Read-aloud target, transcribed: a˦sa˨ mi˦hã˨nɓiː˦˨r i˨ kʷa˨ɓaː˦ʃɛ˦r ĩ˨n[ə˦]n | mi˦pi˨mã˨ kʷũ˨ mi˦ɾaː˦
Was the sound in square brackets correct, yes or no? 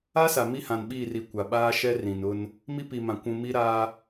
no